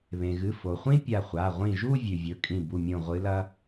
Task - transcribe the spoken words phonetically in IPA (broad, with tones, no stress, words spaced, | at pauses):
βẽ˩ɣɨ˩˧˩ fo˩χʷĩ˥˧ pʲa˧˩χʷa˩˧˩ ʁʷĩ˧˩ʒu˥˧ vʲʉ˩vʲɵ˩˧˩kʼĩ˧˩ bu˧˩mʲõ˧˩ ʁʷɨ˧˥lɐ˥